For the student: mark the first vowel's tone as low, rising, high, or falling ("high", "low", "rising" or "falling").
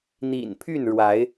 low